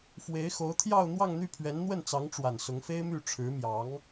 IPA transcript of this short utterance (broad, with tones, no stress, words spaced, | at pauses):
fwe˧˥ɪ̯xo˧˥ʊ̯t̪ʰjɑ˥˧ʊ̯ n̪wɑ˥˧ŋn̪y˥˩pʰɥɛ˧˥nn̪wə˥˩n t͡sɑ˧˥ŋʈ͡ʂwa˨˩n sʊ˧˥ŋfe˥ɪ̯my˥˩ ʈ͡ʂʰɻ̩˧˥mjɑ˧˥ŋ